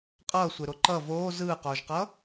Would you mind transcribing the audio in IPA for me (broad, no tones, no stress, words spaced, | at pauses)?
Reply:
qʼʌːsʷeɾo ǃʌ voː zɯːqoːʒqʌː